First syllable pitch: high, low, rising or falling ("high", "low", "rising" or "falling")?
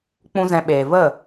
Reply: high